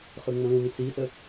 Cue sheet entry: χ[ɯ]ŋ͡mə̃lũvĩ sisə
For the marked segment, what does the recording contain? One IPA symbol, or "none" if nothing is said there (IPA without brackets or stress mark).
ɯ